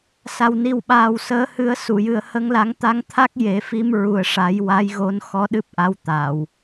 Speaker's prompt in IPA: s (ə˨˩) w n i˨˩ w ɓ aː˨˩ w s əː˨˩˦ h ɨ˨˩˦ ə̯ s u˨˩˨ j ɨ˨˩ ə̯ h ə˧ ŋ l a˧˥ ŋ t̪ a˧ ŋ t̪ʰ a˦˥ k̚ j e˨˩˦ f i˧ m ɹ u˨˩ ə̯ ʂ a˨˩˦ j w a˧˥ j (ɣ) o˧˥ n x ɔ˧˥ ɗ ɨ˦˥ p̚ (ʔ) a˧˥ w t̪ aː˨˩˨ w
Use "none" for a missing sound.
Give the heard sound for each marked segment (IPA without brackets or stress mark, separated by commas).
a˨˩, ɣ, ʔ